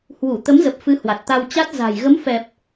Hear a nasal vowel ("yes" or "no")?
no